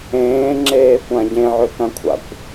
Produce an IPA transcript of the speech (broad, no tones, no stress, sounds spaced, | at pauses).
ẽː ŋ͡ǁ eː kʷ ã ɟ ẽ ʕ ø k ã kʷʰ a̰ kʷ